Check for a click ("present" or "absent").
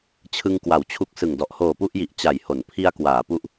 absent